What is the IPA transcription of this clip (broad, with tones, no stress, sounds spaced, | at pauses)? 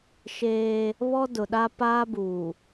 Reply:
ʃ eː˦ | β ɔ˦ d ʊ˨ ɗ a˦ p aː˦ b uː˨